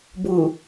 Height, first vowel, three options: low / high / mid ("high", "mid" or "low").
high